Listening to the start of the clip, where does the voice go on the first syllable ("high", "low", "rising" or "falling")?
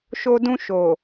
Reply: high